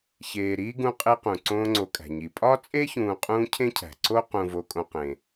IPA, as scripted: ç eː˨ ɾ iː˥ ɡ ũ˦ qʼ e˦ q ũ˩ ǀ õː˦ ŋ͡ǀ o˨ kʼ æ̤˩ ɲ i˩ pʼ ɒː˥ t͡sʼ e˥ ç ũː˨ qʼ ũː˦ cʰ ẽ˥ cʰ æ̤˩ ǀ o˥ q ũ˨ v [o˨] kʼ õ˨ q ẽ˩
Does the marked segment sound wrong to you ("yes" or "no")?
no